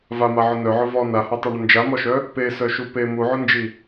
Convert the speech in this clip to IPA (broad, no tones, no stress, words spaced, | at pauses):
vamaʕʊ nœʕʊ vɔ nahatˤyɳʊ nd͡ʒamɔʃœ | pesœʃu pe muʕʊnd͡ʒi